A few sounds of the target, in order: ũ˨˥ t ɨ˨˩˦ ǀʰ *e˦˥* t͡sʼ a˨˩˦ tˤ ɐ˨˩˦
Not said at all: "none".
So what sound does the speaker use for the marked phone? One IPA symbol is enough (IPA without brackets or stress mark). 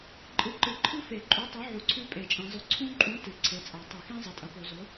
e˨˥